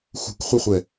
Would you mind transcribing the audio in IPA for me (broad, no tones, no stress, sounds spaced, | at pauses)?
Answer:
x ṳ kʷ χʷ ɘ χʷ ɛ